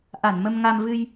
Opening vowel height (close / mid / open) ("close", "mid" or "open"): open